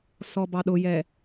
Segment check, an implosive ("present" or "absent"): present